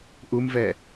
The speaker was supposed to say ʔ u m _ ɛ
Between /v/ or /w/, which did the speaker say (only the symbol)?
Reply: v